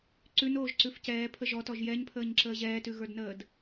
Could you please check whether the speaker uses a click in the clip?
yes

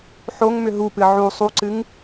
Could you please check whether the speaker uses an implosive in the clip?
no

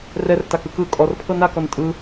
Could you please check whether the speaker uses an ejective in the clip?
yes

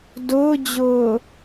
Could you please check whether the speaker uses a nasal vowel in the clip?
no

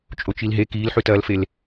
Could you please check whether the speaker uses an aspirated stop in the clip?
no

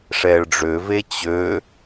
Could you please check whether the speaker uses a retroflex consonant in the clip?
yes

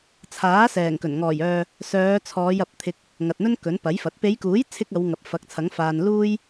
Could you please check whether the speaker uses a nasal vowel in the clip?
no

